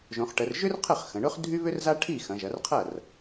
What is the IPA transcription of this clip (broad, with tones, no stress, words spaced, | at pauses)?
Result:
ʒõ˩˧χʈə˩˧rʒʏ˥rqʰə˥˩χ xə̃˩˧ɳʊ˥χ dʱy˥βʏ˥rza˥ ʈʰi˥˩xɐ̃˩˧ʒɐ˩˧rqʰɐ˥˩r